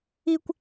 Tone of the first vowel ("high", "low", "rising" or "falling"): high